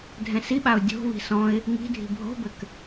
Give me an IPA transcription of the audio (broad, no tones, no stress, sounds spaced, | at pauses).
dʱ ɛ̃ s i ɓ a ʊ̯ dʲ o̤ β i̤ s ɔ̃ ɪ̯ | ŋ i̤ dʱ i̤ bʱ o̤ b ɘ k